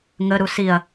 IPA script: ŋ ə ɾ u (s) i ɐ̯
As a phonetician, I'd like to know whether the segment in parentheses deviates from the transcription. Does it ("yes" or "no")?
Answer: no